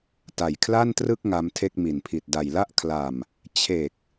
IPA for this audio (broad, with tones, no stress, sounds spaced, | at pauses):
t a˨˩ j kʰ l a˥˩ n t r ɯ˥˩ k̚ ŋ a˦˥ m tʰ e˥˩ k̚ m i˨˩ n pʰ i˨˩ t̚ d a˨˩ j l a˥˩ ʔ kʰ l a˨˩ m | t͡ɕʰ e˨˩ k̚